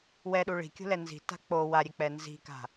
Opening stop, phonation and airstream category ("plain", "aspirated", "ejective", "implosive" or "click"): implosive